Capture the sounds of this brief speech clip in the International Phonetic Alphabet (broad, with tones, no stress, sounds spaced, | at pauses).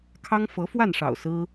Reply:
kʰ ɑ˥ ŋ f ɤ˧˥ f w a˥˩ n ʂ ɑ̰˨˩ ʊ̯ s ɹ̩˥